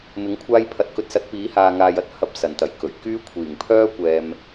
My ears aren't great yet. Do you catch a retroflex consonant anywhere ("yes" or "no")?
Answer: no